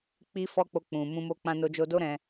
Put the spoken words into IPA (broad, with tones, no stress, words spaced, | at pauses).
k͡pi˦fɔ˦k͡po˧ k͡pũ˨ mũ˧mo˧ k͡pã˧no˧d͡ʒo˧do˦ ɾɛ̃˧